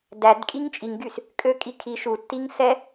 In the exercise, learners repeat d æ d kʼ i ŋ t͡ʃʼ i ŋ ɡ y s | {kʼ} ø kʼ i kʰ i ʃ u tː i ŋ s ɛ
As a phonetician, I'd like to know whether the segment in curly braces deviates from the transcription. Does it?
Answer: no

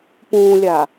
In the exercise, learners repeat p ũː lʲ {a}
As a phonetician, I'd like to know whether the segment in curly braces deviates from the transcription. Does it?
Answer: no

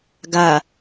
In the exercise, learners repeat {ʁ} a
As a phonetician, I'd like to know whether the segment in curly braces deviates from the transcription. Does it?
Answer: yes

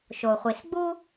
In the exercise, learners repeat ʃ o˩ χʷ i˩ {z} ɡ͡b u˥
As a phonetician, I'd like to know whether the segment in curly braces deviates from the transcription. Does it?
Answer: yes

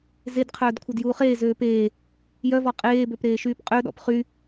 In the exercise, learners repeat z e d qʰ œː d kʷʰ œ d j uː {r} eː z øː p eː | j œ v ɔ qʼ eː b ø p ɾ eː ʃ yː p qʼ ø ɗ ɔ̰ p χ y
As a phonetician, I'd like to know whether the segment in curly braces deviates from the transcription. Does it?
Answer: yes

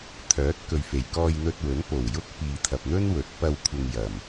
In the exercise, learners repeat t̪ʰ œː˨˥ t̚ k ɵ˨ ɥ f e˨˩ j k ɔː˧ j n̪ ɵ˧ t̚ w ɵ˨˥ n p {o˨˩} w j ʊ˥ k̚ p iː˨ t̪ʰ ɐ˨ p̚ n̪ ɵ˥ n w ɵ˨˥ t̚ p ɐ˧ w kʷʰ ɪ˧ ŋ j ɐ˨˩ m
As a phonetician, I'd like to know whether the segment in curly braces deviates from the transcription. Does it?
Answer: no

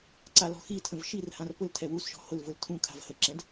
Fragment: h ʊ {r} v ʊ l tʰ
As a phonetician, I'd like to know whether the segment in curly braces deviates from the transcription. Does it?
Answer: yes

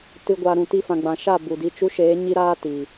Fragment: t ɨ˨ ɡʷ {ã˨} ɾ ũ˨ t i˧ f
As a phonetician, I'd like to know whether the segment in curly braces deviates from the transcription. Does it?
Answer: yes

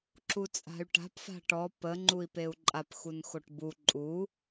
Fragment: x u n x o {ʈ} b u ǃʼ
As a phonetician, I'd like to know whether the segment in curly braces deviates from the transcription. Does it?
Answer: no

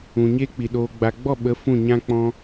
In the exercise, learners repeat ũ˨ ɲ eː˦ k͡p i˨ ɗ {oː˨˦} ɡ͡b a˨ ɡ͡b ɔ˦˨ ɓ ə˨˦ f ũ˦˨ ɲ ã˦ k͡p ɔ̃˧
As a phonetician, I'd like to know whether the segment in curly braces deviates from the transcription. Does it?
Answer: yes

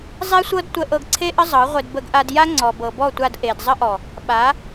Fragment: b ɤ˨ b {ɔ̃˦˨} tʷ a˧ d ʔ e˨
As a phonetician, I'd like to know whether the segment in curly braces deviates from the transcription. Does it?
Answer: yes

